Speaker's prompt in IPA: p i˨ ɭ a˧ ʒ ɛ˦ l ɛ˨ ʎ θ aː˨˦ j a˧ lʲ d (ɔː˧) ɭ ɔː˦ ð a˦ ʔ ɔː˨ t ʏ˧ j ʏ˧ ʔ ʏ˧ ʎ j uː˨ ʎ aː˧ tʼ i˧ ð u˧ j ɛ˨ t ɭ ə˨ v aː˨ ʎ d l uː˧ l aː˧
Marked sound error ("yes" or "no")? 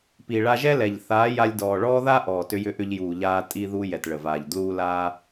yes